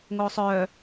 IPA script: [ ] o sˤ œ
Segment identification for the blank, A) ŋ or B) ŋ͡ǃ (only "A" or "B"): A